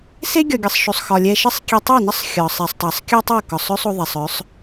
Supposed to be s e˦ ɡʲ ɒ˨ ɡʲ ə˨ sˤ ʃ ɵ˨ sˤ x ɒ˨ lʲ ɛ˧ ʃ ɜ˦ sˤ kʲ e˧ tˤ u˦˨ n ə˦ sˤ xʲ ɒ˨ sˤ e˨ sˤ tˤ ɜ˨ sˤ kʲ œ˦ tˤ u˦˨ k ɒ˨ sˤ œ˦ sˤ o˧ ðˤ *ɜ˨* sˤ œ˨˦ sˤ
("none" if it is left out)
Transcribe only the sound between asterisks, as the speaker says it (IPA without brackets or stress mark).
ɛ˨